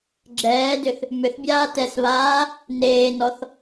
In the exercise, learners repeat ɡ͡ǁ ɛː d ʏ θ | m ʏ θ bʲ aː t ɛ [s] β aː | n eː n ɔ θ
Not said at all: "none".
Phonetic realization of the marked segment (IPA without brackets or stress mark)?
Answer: s